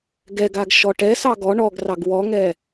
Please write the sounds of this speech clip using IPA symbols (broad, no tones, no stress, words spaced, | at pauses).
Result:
ɡɛɡaɡ ʃɔʈɛsɑ ɡɔ ɳɔɡrɑɡ wɔŋɛ